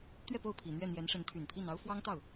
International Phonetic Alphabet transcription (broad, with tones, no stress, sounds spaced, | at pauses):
t̪ ɥ ɛ˥˧ p o˥˩ ʊ̯ pʰ i˨˩ n̪ ɥ ɛ˥˩ n̪ j ɛ˧˥ n ʂ ə˧˥ n t̪ʰ y˨˩ n pʰ i˥˩ n ɑ˥ ʊ̯ f w ɑ˥ ŋ t̪ ɑ˥˩ ʊ̯